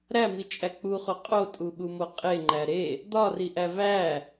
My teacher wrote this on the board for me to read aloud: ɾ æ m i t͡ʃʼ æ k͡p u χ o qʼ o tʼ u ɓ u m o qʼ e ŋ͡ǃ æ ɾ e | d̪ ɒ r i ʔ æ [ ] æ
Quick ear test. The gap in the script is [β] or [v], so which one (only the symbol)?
v